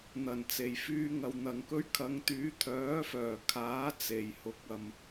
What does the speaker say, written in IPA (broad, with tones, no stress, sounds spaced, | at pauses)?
n̪ ɐ˨˩ n t͡s e˨˩ j f yː˧ ŋ ɐ˨ w n̪ ɐ˨ ŋ k ɵ˥ ɥ kʰ ɐ˨˧ ŋ t̪ yː˨˥ t̪ʰ œː˨˥ f œː˨˩ kʰ aː˨˥ t͡s e˨˩ j h ʊ˨˥ k̚ ɐ˨ m